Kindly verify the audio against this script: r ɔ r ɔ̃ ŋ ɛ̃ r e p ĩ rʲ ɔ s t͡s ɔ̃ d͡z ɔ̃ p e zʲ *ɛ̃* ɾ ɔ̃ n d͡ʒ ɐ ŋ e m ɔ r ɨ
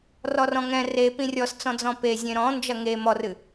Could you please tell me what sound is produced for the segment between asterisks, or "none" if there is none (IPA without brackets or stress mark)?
ẽ